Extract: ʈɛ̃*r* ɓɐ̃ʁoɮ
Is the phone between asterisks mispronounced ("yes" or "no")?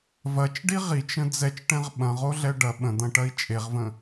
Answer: yes